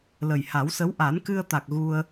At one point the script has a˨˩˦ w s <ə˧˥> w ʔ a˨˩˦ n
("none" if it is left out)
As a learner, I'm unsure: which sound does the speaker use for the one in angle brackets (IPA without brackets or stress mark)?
ə˧˥